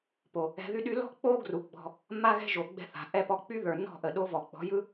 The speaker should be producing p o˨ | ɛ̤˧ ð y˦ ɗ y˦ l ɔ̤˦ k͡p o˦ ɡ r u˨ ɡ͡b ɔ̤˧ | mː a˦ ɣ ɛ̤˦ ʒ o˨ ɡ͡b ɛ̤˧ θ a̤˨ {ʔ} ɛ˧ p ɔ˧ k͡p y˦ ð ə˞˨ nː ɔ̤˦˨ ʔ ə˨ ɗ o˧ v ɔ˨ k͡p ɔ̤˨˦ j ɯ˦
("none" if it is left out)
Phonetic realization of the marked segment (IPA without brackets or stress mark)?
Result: ʔ